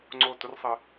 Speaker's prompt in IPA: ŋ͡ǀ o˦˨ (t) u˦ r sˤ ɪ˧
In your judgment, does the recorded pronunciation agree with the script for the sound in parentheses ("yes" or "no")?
yes